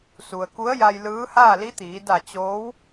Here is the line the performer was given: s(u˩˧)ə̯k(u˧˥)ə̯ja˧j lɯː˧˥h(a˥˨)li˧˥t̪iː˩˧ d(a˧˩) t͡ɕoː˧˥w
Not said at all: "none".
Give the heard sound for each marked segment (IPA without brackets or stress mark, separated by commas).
u˩, u˧˥, aː˥˨, a˧˩